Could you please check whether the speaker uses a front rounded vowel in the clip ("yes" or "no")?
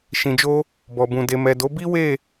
no